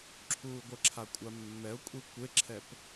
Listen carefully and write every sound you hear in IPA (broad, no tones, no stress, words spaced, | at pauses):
ǁʰuːɡʷəǁʰa kʷʼamːɛʊ̯kʷʼi kʷeǁʰɛp